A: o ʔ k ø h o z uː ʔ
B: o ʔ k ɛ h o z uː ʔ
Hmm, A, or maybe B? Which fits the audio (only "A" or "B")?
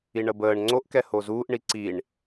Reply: B